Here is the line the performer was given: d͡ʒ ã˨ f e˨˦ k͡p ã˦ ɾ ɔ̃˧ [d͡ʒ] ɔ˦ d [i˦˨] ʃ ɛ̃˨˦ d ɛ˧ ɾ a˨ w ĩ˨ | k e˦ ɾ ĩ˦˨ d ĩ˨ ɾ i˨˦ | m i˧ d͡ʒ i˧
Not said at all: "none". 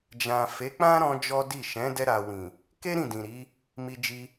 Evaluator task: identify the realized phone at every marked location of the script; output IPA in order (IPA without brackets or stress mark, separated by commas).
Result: d͡ʒ, i˦˨